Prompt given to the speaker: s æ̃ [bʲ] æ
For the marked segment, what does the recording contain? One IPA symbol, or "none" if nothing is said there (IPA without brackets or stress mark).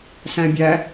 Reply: bʲ